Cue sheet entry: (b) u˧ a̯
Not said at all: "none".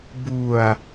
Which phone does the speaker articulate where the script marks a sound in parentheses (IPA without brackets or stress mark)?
b